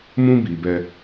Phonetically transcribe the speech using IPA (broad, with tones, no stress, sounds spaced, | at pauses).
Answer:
m ũ˦ b iː˨ b ɛ˧